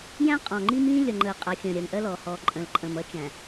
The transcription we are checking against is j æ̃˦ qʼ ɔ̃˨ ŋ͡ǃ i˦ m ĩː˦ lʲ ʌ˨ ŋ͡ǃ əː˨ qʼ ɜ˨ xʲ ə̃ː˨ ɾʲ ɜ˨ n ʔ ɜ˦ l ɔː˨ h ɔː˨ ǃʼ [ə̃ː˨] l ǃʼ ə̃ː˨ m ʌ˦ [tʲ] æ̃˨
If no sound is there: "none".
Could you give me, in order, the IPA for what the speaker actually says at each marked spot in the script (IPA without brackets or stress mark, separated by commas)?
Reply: ə̃ː˨, t͡ʃ